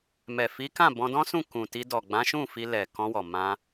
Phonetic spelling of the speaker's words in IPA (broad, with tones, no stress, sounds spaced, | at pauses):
m ɛ˨ f i˨˦ k ã˦˨ b ɔ̃˧ d ɔ̃˦ s ũ˦˨ k ũ˨ t i˧ d ɔ˨ ɡ͡b ã˨˦ ʃ ũ˦˨ f i˧ l ɛ˨ k ɔ̃˧ w ɔ˨ m ã˧